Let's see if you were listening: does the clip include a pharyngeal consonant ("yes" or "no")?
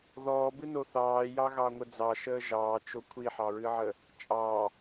yes